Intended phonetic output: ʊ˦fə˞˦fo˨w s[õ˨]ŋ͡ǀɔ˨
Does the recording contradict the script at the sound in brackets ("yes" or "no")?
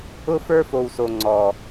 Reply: yes